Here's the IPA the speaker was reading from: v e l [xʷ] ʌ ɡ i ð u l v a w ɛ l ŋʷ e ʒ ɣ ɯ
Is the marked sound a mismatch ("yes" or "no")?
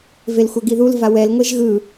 no